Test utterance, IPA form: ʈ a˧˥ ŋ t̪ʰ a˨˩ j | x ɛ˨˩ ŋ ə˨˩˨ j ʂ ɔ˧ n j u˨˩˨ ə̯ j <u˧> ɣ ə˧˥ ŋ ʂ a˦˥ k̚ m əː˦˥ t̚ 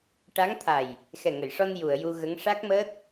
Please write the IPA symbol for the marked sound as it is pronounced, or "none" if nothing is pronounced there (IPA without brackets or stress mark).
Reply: u˧